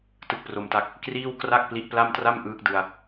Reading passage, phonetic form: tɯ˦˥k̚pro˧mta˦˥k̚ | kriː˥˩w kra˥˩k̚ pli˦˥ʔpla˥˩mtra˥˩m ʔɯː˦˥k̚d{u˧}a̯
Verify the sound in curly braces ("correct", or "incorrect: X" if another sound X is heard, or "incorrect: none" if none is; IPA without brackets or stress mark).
incorrect: ɯ˧